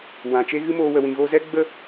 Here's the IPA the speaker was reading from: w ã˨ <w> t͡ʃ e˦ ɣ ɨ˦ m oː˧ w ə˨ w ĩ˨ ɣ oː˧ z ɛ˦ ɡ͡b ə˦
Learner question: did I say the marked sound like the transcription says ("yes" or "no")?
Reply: no